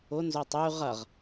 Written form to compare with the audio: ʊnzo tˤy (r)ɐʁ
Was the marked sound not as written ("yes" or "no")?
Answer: yes